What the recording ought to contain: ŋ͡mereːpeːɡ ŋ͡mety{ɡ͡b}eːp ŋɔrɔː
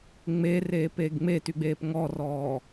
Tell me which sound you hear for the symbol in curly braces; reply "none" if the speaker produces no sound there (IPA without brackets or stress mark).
ɡ͡b